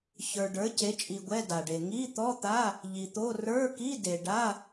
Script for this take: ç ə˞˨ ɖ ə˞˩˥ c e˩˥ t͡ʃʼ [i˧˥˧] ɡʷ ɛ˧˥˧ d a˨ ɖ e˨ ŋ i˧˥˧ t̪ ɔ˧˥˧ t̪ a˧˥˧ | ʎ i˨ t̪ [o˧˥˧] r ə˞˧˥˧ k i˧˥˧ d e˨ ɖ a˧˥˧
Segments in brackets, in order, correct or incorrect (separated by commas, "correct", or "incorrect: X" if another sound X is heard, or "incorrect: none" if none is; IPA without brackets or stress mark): incorrect: i˨, correct